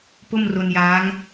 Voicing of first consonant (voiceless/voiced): voiceless